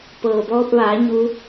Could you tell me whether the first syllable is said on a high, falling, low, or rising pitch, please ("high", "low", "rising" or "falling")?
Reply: low